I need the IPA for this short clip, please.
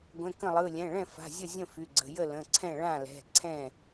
ɡʷ ɛ̃˩˧˩ k ə̃˥˩ lˠ ɯ˩˧˩ lʲ ɛ̃˩˧˩ ɭ ɛ̃˥˩ f a̤˩˧˩ zʲ ə˥˩ zʲ ə̃˥˩ f y˩˧˩ ɡ͡ǀ ə̤˩˧˩ j ə˥˩ l ə̃˩˧˩ ǀʰ ɛ̃˥˩ ɭ ã˥˩ l ɛ̤˩˧˩ ǀʰ ɛ̃˥˩

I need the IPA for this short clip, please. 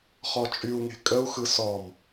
χ ɔ t͡ʃʼ y u̯ ŋ e̤ kʼ ə u̯ x ɯ s ɔ m

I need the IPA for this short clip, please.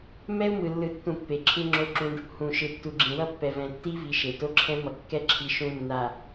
m ɛ˦ u̯ m ɯ˨ lː ɯ˨ tː ũ˨ pː e˨ ǁʰ ɯ˦ ŋ͡ǁ o˦ ǁ ũ˦ ɖ | h ũ˨ ʃ ɯ˨ tː u˨ ɡ͡ǁ ĩ˨ w ʌ˦ pː ɛ˨ v ɛ̃˨ tː i˦ v i˨ ʃ e˨ t o˦ ǁʰ ɛ̃˦ m ʌ˨ kː ɛ˦ ǁʰ i˨ ʃ ũ˦ nː a˨

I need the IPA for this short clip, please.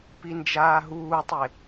p i n d͡ʒ aː ɦ uː tˤ e

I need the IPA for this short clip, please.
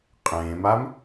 qʼ ẽː m a m

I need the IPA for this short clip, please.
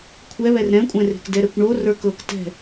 kʷʰ ɛ β ɛ r ɾ ɛ̃ kʷʼ ɛ̃ r e̤ k d ɛ ɾ ɛ kʷ ɳ o r ə˞ k ɤ k t ɛ̤

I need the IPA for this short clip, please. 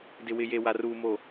d ɪ˨ w ɪ˨ j e˨ w a˨ r uː˨ m o˨

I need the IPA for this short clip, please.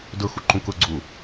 d ʊ x u ǃ ũ k ʊ ɡ͡ǀ u

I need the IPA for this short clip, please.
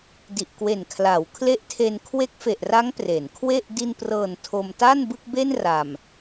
d i˨˩ ʔ k w e˨˩ n kʰ l a˩˦ w kʰ l e˦˥ ʔ tʰ e˧ n kʰ w e˦˥ k̚ f e˨˩ ʔ r a˦˥ ŋ p r e˩˦ n kʰ w e˥˩ ʔ d i˧ n p r ɤː˨˩ n tʰ o˧ m t a˥˩ n b ɯ˥˩ k̚ b e˥˩ n r a˨˩ m

